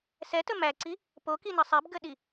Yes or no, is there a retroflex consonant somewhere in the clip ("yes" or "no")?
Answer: no